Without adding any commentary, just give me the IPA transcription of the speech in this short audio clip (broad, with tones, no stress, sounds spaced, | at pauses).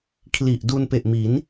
kʰ l i˨˩ ʔ d u˧ n p e˨˩ ʔ m i˩˦ n